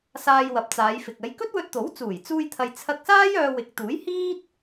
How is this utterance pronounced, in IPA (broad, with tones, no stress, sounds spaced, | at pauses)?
s aː˧ j w ɐ˨ p̚ t͡s aː˨˧ j f ɪ˨ k̚ ɐ˨˧ j k ɵ˥ t̚ w ɵ˧ t̚ t̪ o˨˥ w t͡s uː˨˩ j t͡s uː˧ j t̪ʰ ɐ˨ j t͡sʰ ɐ˧ k̚ s aː˥ j œː˧ w ɪ˨˥ k̚ t̪ uː˨˥ j h iː˥ t̚